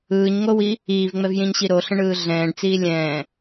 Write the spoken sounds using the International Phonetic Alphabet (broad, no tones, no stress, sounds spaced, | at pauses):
ɯː ɲ ŋ o w i | iː v ŋ͡m ɛ v j ĩ ɲ ɕ i ɾ o ɬ ə̃ ɳ ɯː ɮ ɛ̃ː ɖ t͡s iː lʲ ɛ̃ː